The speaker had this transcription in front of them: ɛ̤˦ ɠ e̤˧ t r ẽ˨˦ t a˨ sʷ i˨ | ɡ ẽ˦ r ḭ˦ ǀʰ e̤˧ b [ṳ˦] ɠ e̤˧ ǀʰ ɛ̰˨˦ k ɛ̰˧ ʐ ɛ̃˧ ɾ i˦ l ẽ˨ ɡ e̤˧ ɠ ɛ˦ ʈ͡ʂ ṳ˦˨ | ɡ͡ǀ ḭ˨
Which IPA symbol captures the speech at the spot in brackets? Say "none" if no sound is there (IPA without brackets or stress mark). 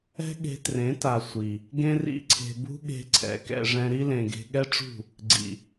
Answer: ṳ˦